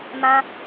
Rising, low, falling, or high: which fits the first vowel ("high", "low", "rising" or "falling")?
high